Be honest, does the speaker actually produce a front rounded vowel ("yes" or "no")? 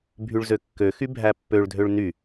yes